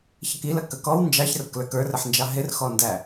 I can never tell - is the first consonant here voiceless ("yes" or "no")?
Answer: yes